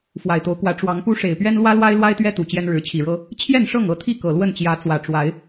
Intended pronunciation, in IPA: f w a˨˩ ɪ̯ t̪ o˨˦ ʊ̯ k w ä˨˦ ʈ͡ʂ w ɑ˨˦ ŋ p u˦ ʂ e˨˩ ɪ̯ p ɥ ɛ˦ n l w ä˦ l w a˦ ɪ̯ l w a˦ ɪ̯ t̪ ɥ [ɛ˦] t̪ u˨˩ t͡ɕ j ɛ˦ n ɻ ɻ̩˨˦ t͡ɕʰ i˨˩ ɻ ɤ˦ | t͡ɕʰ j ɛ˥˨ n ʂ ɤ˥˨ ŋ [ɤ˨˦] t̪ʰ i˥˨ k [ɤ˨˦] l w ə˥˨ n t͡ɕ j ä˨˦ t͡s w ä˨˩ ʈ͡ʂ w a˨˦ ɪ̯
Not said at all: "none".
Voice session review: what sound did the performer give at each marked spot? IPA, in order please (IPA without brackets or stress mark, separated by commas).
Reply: ɛ˦, ɤ˨˦, ɤ˨˩